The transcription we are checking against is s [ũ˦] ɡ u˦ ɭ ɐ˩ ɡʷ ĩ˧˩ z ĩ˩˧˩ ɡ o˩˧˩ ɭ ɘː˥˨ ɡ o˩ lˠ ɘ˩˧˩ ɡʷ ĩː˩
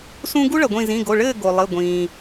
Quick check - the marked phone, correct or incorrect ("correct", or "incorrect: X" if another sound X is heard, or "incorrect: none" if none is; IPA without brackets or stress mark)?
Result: correct